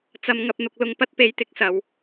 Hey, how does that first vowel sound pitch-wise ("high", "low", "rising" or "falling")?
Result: low